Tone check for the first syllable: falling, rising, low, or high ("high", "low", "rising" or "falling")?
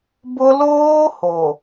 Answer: high